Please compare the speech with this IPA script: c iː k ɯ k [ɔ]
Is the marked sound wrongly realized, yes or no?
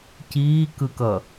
yes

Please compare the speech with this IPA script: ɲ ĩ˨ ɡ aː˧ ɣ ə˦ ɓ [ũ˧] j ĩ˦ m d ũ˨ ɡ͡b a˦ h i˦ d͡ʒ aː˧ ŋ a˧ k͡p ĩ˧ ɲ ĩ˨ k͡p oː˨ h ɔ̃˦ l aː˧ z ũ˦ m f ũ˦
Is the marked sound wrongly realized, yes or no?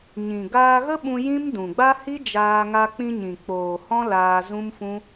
no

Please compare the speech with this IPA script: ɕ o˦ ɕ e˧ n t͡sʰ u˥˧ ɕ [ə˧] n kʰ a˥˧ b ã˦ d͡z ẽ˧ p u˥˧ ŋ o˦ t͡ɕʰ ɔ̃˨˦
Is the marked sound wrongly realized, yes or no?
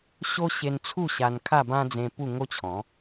yes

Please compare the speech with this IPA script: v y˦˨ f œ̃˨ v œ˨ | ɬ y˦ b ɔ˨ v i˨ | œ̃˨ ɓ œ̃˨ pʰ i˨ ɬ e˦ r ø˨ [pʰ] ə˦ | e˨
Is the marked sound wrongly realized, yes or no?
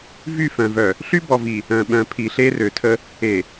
yes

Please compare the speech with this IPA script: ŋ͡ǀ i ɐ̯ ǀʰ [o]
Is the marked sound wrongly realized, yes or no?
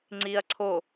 no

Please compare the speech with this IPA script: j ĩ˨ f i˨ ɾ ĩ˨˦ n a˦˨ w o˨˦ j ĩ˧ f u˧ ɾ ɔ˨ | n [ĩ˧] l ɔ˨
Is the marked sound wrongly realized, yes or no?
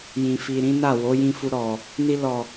yes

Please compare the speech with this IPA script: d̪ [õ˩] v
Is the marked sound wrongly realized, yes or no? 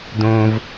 no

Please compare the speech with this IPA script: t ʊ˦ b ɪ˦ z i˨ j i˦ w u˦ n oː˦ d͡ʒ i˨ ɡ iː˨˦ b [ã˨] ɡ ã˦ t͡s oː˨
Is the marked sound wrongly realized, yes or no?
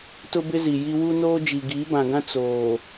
no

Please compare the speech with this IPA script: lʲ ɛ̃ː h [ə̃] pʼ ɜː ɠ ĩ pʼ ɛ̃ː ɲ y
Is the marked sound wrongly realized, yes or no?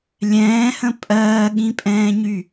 no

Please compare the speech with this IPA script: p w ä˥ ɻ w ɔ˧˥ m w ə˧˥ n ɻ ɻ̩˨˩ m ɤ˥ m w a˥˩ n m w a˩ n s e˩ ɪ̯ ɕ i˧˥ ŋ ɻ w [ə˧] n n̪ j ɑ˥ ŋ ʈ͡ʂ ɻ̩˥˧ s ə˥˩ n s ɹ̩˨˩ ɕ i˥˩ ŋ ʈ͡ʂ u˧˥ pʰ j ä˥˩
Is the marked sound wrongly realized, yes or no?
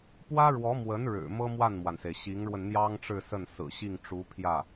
no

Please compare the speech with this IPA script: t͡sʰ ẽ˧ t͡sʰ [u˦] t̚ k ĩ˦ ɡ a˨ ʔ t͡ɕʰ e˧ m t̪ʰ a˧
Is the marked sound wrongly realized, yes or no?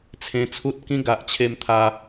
no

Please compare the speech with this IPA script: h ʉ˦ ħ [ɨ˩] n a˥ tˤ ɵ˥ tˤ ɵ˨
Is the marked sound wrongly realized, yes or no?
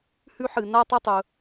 no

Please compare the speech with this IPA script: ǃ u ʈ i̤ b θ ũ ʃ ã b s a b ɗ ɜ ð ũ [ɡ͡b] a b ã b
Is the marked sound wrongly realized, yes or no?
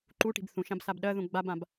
no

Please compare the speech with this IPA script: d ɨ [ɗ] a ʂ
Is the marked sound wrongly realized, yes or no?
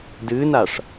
yes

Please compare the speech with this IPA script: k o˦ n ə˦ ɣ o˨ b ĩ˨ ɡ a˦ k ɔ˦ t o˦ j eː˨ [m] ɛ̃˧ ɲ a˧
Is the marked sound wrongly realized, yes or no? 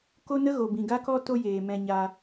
no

